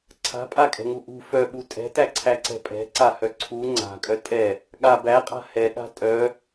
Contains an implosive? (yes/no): yes